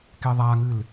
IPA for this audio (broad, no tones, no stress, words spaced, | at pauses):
keðˤaŋɨl